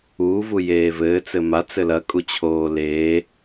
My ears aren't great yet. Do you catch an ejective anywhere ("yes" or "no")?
yes